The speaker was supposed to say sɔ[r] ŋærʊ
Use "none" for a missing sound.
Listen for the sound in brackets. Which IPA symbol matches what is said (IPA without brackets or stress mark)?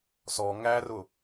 none